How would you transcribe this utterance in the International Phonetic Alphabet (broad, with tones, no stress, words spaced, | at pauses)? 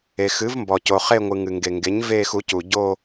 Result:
e˩ xɨ˩˥vmbɔ˩co˩ χe˥˧ŋʷɨ˩ ŋɨ˩ŋɡe˩ŋɡe˩˥ɲ veː˥˧xu˩˥cu˩ ɟo˥˧